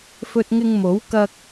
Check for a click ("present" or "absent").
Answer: absent